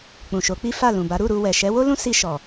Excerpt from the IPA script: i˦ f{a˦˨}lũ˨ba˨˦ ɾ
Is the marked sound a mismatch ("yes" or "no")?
no